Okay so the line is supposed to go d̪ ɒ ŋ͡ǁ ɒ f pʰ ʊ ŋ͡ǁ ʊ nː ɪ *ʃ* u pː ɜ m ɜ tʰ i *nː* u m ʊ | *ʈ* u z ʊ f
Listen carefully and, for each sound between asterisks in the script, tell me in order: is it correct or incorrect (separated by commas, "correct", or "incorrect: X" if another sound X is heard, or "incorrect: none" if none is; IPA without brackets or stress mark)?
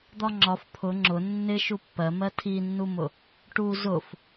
correct, correct, correct